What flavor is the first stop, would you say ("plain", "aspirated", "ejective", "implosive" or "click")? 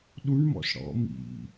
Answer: implosive